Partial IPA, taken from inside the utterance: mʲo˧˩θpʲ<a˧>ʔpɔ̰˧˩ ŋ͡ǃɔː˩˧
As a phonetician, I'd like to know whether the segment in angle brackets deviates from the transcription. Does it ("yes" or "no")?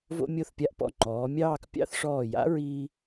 no